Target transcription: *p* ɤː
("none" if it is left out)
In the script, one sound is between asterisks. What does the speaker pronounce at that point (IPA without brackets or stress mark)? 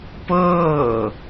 p